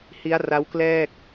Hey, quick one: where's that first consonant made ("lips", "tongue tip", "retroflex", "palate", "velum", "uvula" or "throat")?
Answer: throat